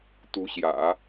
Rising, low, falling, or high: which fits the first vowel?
rising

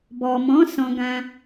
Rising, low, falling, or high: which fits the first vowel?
low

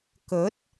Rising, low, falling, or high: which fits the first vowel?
rising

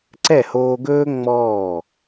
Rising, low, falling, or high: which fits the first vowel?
falling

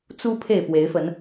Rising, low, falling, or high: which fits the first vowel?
high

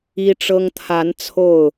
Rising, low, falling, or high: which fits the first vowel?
high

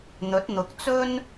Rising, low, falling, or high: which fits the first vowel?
rising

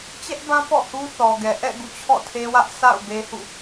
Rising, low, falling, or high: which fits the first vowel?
high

